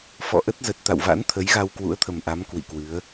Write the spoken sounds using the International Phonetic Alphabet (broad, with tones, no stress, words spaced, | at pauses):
fɔ̰˧˨ʔə˦˥t̚ zə˨˩t̚ t̪a̰˧˨wva̰˧˥n t̪ʰə˨˦jɣa˧wkwṵ˧˥ə̯t̪ʰə˨˩m ʔa˨˦m kwḭ˧˨kwɨ˨˦ə̯